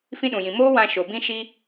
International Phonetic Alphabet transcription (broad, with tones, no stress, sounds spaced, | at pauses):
f ĩ˦ ɗ ũ˨ j ĩ˨ m oː˦ w ã˧ ʃ o˨ b ĩ˧ ʃ i˦